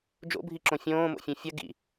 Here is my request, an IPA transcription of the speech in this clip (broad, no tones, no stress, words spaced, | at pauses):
d͡ʒo̰bʱiǁõ fʲõːmo̰fʲẽ fʲɐ ɡḭ